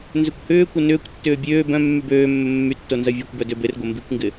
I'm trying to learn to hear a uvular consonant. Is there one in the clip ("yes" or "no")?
no